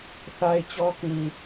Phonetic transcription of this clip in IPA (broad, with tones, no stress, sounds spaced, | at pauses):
θ a˦ ɪ̯ t͡ɕ ɔ˦ k ĩ˨